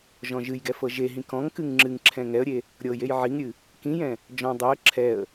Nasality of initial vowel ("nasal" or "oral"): nasal